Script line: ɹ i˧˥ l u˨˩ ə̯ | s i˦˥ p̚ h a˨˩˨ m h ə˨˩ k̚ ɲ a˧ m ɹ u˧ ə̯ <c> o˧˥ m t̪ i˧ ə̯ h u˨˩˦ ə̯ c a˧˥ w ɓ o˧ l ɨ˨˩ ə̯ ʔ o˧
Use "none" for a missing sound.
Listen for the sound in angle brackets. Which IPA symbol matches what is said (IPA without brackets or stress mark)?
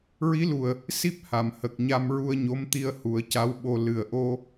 ɲ